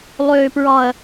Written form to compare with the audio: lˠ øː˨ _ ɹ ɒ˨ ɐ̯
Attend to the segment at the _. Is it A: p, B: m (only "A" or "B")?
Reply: A